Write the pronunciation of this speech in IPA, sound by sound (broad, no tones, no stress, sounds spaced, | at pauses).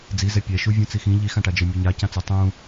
d͡z i z ɛ pʲ ɛ ʃ u vʲ ũ t͡s i x ĩ ʎ i x ã ʈ a d͡ʒ ə˞ mʲ ɘ ɲ a c ã t͡s ə˞ tˤ ũ